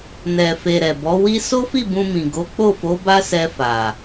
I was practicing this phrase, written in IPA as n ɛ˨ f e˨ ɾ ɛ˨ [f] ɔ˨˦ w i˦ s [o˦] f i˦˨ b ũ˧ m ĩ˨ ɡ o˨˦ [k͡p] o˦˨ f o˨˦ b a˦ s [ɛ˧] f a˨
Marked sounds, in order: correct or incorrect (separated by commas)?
incorrect, correct, correct, correct